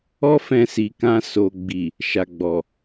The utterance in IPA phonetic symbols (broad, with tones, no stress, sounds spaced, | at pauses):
ɔ˦ f ɛ̃˧ s i˨ k ã˧ s o˨ ɡ͡b i˨ | ʃ a˨ ɡ͡b ɔ˨